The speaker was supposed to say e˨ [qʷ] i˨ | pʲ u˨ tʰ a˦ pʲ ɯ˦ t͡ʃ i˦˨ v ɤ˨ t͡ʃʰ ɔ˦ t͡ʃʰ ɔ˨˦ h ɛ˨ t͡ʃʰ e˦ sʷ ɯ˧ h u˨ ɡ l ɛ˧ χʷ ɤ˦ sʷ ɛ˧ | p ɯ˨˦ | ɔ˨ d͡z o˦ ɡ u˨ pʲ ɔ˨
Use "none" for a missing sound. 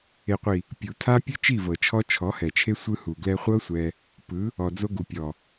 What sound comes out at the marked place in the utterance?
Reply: qʷ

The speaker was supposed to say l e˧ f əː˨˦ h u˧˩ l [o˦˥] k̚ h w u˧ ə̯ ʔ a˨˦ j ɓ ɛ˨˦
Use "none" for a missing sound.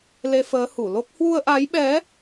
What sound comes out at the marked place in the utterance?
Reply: o˦˥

